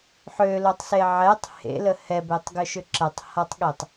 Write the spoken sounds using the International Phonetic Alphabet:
ħ ø l o tˤ s e ʕ ɛ tˤ h ḛ l ə h ɛ b e tˤ ɡ ʏ ʃ ʏ ǁ ɐ tˤ h a tˤ ɠ e tˤ

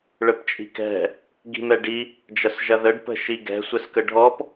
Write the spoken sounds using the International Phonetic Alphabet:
ɭ ə p t͡ʃʼ i̤ k ɛ̤ | ɡ i̤ m ɛ ɖ i | d͡ʒ ɐ s ʒ ɐ ð ə ɖ p ə̤ ʃ i ɡ ɛ̤ sʷ ɛ s k ə ɖʱ ɔ p

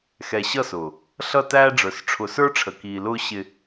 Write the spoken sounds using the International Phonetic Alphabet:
x ɛ˨ ɕ ʌ˦˨ s ʊː˨ | ɬ ʌ˦˨ t æː˦ ɖ͡ʐ ə˞˨ s ʈ͡ʂʰ ʊ˨ s ə˞˦ ʈ͡ʂʰ ə˨ k iː˨ l ʊː˦ ɕ ɪ˨

